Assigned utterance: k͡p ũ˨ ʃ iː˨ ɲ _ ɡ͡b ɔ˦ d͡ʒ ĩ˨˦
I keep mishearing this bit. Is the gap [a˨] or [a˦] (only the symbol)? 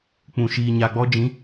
a˨